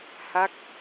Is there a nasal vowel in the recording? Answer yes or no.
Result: no